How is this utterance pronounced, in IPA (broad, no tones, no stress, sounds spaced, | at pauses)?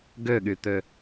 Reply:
ɡ ø ɠ y t̪ ø